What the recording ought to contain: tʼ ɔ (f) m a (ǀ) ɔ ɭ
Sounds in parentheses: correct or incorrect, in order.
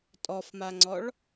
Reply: correct, incorrect: ŋ͡ǀ

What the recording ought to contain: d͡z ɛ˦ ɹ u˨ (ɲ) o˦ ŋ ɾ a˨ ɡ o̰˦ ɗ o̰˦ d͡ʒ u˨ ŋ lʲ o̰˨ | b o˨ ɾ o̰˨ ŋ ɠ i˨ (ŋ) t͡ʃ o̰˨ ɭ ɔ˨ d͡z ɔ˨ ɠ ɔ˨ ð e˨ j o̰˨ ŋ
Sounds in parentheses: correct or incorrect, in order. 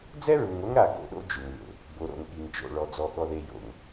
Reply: incorrect: ŋ, correct

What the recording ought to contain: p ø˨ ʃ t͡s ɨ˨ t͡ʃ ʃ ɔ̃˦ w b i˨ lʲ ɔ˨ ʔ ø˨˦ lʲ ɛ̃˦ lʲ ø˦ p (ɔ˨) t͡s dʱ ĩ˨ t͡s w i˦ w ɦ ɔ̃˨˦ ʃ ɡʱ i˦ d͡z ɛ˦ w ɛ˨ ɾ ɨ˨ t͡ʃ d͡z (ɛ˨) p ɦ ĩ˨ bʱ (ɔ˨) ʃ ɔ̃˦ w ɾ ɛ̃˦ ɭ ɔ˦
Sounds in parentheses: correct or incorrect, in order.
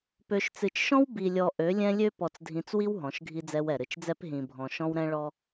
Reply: correct, incorrect: ɛ˦, incorrect: ɔ̃˨

